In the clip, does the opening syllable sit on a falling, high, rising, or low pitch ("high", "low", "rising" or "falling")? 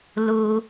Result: low